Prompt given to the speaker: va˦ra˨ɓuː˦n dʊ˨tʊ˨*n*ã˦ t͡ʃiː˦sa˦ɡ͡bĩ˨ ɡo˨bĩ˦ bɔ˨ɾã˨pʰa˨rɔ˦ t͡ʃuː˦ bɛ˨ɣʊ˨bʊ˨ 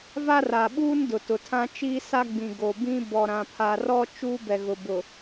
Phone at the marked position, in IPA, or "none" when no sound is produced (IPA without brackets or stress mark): tʰ